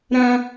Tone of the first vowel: high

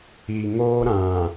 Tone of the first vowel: low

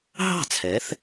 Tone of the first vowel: falling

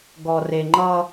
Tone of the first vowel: low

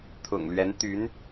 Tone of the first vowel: low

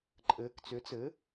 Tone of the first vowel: rising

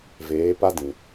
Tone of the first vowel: rising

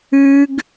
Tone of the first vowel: high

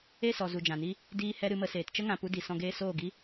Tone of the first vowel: falling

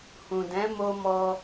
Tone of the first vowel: low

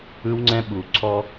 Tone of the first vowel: high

